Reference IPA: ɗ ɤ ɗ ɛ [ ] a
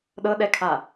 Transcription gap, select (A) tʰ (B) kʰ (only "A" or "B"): B